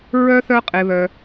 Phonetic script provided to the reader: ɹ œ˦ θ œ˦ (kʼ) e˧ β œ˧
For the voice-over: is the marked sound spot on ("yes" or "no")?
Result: no